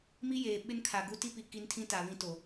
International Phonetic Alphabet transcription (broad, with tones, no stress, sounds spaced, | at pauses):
m i˦ j eː˨ ɓ ɪ˦ n kʰ a˨ ɡ u˦ t i˦ p i˨ k i˦ n tʰ ĩ˦ t a˨ β ĩ˦ t o˨